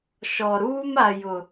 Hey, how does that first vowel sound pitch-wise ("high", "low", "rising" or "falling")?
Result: low